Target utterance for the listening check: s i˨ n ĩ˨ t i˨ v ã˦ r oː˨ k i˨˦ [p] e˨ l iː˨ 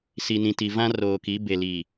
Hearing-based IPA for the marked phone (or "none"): b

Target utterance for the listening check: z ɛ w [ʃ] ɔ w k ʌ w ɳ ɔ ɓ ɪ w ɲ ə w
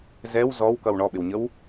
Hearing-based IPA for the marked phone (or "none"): z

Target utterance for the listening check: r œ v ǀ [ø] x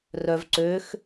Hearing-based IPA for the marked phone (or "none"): ø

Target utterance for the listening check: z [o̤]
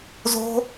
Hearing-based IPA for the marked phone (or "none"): o̤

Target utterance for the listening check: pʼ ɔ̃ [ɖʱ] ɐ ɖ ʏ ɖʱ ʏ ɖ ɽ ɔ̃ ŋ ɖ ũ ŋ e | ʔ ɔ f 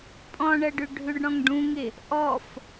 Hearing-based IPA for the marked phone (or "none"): ɳ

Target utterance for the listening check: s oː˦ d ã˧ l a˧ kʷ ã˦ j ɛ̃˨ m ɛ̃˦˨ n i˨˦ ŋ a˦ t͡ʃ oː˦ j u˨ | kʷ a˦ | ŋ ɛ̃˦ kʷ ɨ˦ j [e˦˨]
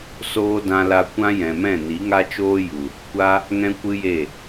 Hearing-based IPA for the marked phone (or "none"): e˦˨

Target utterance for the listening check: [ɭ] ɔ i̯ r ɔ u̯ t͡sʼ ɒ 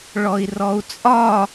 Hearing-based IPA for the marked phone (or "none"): ɭ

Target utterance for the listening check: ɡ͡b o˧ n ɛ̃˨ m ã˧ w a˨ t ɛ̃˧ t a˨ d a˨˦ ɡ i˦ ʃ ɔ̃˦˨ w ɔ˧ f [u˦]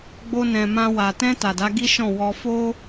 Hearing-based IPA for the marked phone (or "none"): o˦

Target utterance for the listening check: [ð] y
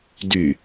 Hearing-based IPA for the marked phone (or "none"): d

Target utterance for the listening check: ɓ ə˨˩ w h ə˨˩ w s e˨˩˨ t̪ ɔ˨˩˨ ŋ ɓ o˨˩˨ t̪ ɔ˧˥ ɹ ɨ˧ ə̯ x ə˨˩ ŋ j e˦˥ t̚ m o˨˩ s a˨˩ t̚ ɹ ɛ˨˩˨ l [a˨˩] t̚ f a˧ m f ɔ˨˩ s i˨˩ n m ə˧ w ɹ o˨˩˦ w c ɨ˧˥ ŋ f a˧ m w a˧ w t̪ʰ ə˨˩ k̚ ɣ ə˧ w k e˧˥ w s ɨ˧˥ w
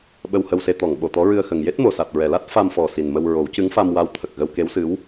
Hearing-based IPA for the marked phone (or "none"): a˦˥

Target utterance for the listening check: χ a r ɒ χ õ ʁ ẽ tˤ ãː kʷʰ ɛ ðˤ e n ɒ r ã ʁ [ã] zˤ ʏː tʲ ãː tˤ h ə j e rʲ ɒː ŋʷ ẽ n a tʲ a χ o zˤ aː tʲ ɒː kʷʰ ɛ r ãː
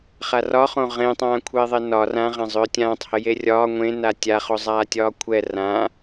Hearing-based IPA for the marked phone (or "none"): ã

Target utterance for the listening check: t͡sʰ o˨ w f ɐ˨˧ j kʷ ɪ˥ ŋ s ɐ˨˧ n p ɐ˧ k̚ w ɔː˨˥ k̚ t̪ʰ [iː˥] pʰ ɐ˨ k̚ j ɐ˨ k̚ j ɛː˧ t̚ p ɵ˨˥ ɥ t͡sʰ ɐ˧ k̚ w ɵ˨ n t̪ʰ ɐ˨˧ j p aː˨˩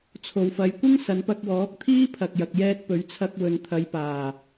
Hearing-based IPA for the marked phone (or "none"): iː˥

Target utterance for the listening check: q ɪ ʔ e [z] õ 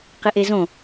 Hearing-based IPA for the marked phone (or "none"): z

